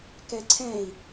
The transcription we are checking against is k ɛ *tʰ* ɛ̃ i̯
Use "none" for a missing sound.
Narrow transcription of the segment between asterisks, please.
ǀʰ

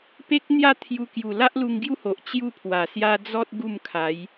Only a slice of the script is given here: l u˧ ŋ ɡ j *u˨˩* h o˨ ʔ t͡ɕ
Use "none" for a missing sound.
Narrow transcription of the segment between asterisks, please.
u˦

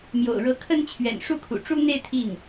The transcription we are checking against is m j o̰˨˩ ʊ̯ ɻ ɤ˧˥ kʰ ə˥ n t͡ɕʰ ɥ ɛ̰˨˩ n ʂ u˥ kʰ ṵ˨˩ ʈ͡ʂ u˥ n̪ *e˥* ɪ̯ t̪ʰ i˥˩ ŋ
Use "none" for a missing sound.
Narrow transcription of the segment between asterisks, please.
e˥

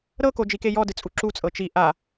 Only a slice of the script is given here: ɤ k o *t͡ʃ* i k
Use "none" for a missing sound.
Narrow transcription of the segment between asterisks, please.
d͡ʒ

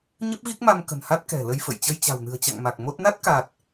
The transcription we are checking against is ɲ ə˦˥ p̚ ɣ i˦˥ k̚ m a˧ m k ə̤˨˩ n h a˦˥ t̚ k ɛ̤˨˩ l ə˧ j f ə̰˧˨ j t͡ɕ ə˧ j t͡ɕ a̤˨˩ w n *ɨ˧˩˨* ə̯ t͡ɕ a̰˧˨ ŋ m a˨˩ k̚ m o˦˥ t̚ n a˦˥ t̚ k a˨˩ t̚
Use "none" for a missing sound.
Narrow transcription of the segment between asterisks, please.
ɨ̤˨˩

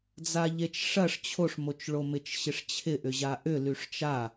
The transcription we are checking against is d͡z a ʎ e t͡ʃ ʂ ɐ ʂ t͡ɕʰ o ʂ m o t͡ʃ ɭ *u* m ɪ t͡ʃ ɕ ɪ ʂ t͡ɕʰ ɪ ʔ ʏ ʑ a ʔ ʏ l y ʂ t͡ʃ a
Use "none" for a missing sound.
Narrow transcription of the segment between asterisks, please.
o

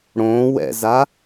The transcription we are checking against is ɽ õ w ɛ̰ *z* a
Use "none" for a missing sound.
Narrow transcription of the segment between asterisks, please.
z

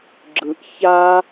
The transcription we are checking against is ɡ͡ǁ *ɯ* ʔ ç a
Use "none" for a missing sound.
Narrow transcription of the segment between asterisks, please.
ɯ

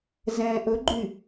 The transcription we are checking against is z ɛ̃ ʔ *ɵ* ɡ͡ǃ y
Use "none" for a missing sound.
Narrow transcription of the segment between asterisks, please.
ɵ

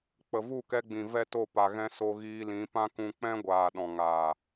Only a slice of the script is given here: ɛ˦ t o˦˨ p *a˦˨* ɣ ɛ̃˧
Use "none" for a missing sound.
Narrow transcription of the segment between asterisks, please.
a˨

